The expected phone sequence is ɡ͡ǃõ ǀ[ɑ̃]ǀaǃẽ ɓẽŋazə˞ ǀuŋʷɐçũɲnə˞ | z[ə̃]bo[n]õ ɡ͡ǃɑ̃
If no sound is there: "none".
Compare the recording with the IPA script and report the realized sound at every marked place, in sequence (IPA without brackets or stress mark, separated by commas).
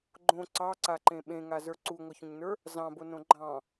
ɑ, ɑ̃, n